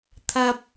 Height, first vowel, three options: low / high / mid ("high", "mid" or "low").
low